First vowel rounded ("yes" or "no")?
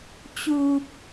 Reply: yes